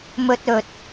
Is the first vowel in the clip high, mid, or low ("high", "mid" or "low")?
mid